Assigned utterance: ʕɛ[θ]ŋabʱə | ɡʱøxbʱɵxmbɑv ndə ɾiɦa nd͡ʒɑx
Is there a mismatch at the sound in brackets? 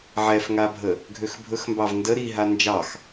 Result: yes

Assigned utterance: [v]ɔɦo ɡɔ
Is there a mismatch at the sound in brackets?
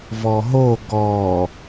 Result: no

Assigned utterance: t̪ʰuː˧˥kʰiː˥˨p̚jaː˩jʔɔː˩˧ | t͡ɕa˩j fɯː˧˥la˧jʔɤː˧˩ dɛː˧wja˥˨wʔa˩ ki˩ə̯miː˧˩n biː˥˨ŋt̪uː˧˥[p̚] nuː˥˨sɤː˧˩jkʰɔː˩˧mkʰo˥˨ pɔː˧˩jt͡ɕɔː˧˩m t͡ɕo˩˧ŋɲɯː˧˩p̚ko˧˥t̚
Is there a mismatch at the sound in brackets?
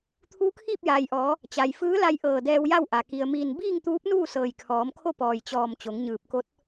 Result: no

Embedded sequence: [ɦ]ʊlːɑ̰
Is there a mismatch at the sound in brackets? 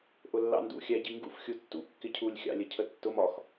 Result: yes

